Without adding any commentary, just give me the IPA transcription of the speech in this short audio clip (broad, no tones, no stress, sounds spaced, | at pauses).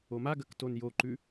o m a ɡ ɐ k t o n j o ǃ ʉ